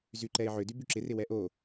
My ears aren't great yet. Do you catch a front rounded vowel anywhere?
yes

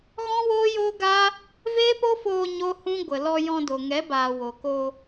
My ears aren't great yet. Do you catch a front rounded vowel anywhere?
no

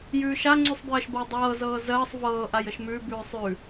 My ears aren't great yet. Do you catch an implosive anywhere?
no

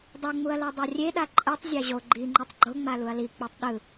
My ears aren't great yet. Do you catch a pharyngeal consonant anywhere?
no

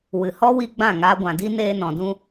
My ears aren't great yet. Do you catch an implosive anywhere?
no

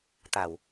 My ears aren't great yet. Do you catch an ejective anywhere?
no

